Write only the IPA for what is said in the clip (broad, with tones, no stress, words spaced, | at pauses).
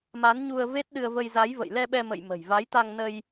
ma˨˦n ɲu˧ə̯ve˦˥t̚ɗɨ˧ə̯və˧j za˨˦jvə̰˧˨j lɛ˧ɓɛ˧mə̰˧˨j mə̤˨˩jva˨˦jt̪a˧ŋ nə˧j